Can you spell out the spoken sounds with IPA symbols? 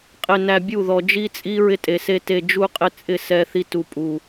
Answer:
qʼ ɪ˨ n æ˨ bʲ u˦˨ ð ɔ˨ d͡ʒ i˦ t͡sʼ i˦ ɹ ɪ˦ tʼ e˨ s e˦ t e˨ d͡ʒ u˦ qʼ ɪ˦ t͡sʼ ɪ˦˨ s ɛ˦ θ i˦ t u˨ pʼ u˨

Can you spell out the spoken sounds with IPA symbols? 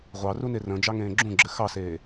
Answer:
ʁʷ ɑ r u n e r ə̃ d͡ʒ ɑ ŋ ẽː ɡ͡ǁ ũ ɡ͡ǁ ɘ x ɑ s eː

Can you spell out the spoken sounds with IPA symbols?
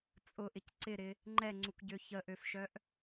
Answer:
t͡sʼ ʊ ʔ ɪ c ǀ ɪ ɾ ɪ | ŋ͡ǃ ɛ ŋ͡ǀ u k ɟ ø ç ə ʔ ø f ʃ œ ʔ

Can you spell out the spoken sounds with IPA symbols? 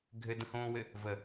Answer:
ɡʱ ɘ d ə̃ h õː w ɘ | v ə

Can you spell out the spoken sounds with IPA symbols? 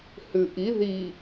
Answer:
h ʉ ʔ i ð i

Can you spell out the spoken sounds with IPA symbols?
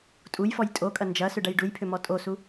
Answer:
tʼ u j f ɔ j tʼ o kʼ ɐ n d͡ʒ ɐ s ʏ ɖ ɐ j ɖ u j pʰ ʏ m ɔ tʼ o s u

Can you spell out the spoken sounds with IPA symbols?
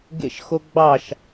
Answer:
ɡ ḛ ʃ x o ɡ͡b ɑ ʃ

